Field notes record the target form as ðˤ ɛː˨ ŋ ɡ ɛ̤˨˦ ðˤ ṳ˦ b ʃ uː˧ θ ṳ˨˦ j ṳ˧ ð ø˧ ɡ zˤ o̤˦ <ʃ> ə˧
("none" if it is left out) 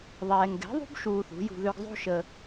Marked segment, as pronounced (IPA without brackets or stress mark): ʃ